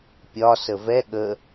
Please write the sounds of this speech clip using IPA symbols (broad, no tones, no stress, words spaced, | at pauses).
pʲɒsə vɛ ɠə